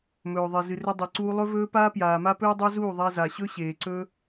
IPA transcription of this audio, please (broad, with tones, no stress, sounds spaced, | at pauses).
m ɵː˨ ðˤ e˨ z ɨ˨ r ɵ˧ dˤ e˨ ǀ uː˧ lˠ ɵ˧ v ɵː˧ p aː˧ p j aː˨ m a˦ p ɵː˦ dˤ a˦ z uː˦˨ ðˤ a˧ z a˨ ɕ ɵ˦ ɕ eː˨ ǀ ɵ˧